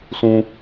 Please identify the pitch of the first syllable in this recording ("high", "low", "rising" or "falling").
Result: high